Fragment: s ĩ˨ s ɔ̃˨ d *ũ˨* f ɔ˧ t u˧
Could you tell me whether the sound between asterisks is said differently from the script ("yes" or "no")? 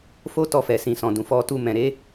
no